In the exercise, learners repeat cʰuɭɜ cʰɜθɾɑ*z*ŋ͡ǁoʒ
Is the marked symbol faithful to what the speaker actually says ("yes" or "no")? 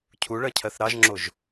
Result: no